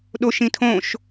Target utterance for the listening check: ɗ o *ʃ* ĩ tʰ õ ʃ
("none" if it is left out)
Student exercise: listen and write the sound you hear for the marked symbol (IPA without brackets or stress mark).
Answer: ʃ